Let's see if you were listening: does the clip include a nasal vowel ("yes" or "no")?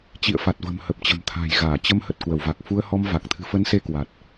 no